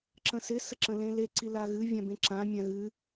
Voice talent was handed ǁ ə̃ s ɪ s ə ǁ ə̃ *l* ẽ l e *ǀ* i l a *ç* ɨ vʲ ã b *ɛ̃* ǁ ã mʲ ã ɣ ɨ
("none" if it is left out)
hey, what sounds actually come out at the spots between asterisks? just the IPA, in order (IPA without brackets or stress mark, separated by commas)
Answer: l, ǀ, ɣ, ẽ